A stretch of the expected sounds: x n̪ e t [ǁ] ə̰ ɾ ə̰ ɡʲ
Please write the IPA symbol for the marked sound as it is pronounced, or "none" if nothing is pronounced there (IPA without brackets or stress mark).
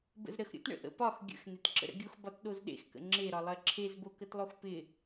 ǁ